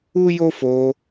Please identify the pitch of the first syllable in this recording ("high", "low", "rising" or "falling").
high